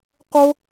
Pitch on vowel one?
high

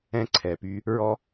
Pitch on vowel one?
high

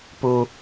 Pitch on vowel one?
low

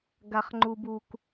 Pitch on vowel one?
low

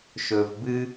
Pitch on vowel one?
low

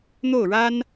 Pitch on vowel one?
falling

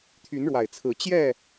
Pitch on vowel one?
rising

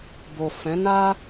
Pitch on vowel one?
low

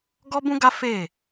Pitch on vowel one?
high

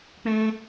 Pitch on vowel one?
high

